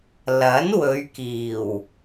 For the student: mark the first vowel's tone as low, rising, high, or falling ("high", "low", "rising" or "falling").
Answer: rising